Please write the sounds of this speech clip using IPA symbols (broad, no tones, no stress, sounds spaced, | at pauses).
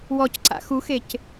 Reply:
w ɔ c ǀ a̰ x u x e c